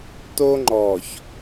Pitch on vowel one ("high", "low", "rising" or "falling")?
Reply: high